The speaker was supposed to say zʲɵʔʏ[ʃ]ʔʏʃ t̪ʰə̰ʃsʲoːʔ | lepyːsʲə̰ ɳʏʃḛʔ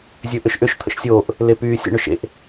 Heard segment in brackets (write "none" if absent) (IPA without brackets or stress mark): ʃ